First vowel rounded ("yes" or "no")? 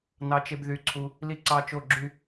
no